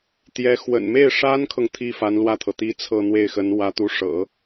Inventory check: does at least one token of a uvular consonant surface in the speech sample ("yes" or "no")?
no